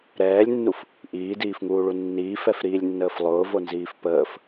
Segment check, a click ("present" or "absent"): absent